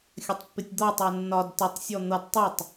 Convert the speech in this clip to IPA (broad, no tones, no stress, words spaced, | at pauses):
xʲətˤpːɪtʲd̪ɒtˤɜ nːɒd tətˤsʲɔ n̪ʌd tˤʊtˤ